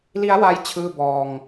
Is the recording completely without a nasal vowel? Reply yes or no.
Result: yes